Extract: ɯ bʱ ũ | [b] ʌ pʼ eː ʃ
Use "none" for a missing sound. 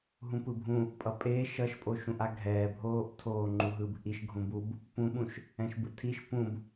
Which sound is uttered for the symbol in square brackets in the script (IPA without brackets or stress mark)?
pʼ